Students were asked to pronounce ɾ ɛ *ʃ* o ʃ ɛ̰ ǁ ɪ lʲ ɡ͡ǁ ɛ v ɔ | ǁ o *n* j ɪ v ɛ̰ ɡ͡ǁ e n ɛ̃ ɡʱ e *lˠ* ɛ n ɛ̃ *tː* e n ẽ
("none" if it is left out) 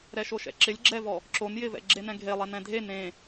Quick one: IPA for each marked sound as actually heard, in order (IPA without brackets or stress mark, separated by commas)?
ʃ, n, lˠ, dʱ